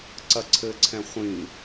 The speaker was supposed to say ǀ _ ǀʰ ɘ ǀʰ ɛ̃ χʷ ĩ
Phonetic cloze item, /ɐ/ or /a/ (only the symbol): ɐ